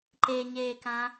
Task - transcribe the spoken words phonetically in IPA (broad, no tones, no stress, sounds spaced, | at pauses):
ǃ e ɲ eː k ã